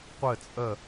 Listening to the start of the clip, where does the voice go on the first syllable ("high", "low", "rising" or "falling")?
falling